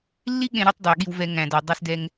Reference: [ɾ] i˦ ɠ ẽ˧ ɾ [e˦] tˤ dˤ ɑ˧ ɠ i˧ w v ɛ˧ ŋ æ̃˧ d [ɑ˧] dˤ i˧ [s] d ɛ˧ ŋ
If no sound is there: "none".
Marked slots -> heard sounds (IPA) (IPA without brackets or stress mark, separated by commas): lː, e˦, ɔ˧, s